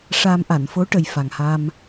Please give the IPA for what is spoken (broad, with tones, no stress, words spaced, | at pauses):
ʂaː˧m ʔa˨˩˨n fo˧˥ʈə˨˩j fa˨˩ŋha˧m